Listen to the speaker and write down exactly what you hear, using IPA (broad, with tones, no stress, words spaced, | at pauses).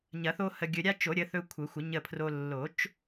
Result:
ɲɐ˨˩˦θo˦ hə˨ɡʲɵ˨ ɾʲa˦t͡ʃo˨˩˦ ɾʲə˩˥θɵ˦kʷʰə˨˩˦xʷə˨˩˦ ɲə˦˨pʰro˦ lːo˨˩˦t͡ʃ